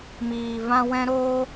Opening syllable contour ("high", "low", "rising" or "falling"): low